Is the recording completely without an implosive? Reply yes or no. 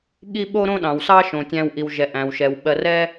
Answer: no